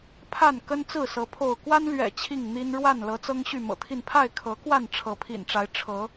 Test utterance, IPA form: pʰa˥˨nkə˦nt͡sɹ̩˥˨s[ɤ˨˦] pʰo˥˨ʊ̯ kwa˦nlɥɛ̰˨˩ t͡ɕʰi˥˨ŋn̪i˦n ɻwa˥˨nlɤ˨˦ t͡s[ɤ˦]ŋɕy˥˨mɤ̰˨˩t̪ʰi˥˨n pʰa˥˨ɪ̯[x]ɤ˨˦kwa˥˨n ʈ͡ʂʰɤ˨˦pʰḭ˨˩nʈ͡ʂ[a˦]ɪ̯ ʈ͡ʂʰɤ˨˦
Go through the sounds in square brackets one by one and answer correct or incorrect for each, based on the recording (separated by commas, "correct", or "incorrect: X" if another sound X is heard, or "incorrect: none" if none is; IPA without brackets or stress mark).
correct, correct, incorrect: kʰ, incorrect: a˨˦